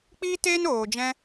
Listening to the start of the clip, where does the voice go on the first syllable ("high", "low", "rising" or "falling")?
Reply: high